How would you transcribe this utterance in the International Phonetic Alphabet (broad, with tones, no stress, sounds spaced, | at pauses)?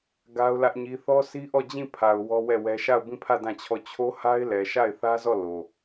ɡ a˦ ʊ̯ l ä˦ ʔ ɲ i˦ θ ɔ˦ s i˦ ʔ ɔ˦˨ d͡ʑ ĩ˦˨ pʰ a˨ ʊ̯ w ɔ˦ w ɛ˦˨ w ɛ˦ ʃ a˦˨ ʊ̯ b ĩ˦˨ pʰ ä˦˨ d ã˦˨ t͡ɕʰ ɔ˦˨ t͡ɕʰ o˦ h a˦ ɪ̯ l ɛ˨ ʃ a˦˨ ɪ̯ θ ä˦ z ɔ˦˨ l o˨